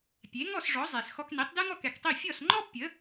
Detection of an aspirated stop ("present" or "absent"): absent